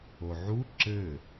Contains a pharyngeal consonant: yes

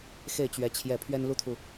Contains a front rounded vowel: no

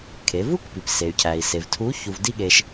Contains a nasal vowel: no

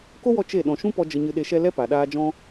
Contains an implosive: yes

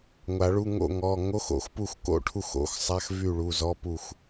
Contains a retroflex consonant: yes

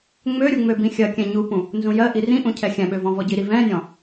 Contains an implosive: yes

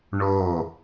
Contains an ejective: no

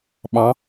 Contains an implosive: yes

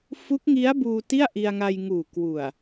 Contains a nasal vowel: no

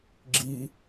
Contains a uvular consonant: no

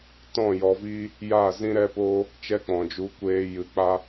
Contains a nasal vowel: yes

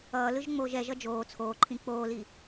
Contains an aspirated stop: yes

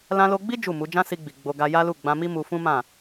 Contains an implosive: no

